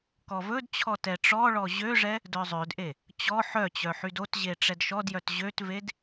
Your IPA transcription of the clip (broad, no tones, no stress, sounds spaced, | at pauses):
k ɔ v ɵ d t͡ɕʰ ɔ t ɛ ʈ͡ʂ ɔ ɭ ɔ ʑ ø ʐ ɛ | d œ zˤ ø d ʔ e | t͡ɕ ɔ ħ œ t͡ɕ œ ħ y d o t ʑ e ʈ͡ʂ ɛ d ʃ ɔ d j œ t ʑ ø t v e d